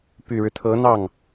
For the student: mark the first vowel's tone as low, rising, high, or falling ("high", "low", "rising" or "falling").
low